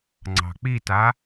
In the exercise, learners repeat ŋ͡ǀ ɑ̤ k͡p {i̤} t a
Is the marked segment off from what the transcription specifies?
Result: yes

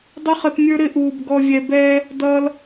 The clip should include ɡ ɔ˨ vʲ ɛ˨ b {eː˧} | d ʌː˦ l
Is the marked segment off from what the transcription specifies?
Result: yes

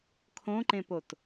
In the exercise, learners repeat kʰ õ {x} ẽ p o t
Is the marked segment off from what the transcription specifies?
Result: yes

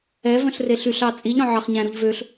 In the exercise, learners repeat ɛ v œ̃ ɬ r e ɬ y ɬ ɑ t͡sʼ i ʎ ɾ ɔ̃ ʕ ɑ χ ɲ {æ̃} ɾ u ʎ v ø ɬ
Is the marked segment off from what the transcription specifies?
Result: no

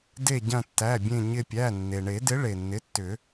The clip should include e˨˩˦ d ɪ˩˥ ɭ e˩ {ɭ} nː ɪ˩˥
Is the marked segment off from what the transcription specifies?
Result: yes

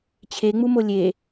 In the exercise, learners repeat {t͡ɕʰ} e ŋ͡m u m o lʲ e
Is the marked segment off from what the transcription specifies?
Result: no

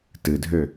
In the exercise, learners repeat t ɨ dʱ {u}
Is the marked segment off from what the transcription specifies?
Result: yes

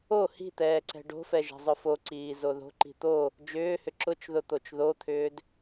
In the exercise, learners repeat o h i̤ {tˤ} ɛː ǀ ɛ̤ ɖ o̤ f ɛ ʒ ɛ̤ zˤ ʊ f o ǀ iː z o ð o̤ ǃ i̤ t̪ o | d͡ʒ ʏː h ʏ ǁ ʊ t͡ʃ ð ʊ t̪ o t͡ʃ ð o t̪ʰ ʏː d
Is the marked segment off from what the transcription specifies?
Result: yes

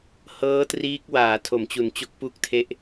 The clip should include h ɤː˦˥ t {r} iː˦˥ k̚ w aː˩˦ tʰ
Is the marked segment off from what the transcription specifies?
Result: no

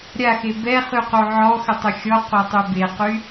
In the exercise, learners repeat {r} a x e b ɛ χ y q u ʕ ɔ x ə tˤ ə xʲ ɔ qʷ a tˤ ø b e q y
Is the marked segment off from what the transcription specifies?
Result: yes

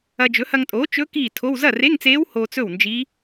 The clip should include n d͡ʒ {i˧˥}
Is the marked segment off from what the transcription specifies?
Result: no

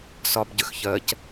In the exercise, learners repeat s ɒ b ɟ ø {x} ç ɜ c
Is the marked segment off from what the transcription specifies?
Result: no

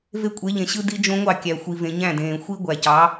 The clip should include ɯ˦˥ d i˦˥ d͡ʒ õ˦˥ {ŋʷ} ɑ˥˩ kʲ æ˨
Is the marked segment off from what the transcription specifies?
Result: no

